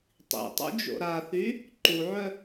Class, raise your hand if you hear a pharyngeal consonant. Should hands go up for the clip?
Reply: yes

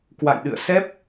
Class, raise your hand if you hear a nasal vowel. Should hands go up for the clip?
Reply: no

